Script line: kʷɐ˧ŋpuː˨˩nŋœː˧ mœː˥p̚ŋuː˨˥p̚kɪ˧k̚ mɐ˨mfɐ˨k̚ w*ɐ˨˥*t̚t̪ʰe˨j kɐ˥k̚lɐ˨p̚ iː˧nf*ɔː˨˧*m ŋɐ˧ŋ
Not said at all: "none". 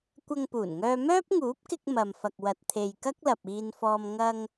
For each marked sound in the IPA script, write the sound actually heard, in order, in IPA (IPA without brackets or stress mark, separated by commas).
ɐ˨, ɔː˧